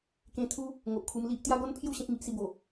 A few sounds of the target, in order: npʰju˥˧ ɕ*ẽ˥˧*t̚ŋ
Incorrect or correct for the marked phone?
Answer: incorrect: ẽ˦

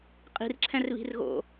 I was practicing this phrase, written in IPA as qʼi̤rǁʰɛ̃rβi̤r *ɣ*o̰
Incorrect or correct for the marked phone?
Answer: correct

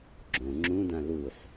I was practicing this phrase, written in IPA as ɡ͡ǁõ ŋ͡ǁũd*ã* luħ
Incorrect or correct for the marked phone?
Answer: correct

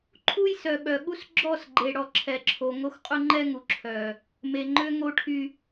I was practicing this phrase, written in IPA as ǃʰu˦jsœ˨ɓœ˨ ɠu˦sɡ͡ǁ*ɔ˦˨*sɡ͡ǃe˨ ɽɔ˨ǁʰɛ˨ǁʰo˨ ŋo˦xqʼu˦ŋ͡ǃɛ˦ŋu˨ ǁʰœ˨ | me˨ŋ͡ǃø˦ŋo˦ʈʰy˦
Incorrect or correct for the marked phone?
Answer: correct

